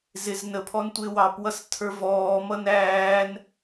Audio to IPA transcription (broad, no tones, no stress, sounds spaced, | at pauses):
z ɪ z n ə pʰ ɔ n tʷ ɪː w ɑ p w ʌ s tʰ ə˞ v ɔː m ʌ n æː n